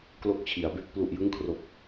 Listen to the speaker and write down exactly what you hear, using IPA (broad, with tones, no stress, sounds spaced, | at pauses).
k l o˦˥ k̚ t͡ɕʰ i˩˦ a̯ b e˦˥ k̚ p l u˨˩ ʔ j ɯ˦˥ ŋ kʰ r o˨˩ k̚